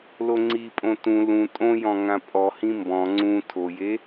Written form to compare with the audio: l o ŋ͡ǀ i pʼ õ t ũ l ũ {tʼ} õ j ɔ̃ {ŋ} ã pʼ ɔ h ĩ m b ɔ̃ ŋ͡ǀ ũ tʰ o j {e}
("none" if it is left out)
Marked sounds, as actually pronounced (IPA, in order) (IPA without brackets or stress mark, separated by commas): tʼ, ŋ, e